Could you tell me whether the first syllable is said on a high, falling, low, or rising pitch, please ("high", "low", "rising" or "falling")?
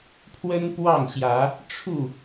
high